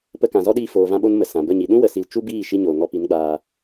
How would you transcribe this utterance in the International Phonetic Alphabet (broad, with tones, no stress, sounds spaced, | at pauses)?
p ə˧ k ã˨ z ɔ˦ ɗ iː˧ f oː˨ v ã˧ ɓ o˧ n m ə˨ s ã˨ b ə˦˨ ɲ i˨ ɗ ũ˦ w ə˧ s i˧ l t͡ʃ u˦ b iː˦˨ ʃ i˧ ɲ oː˨ ŋ ɔ˧ p i˨˦ n ɡ͡b aː˧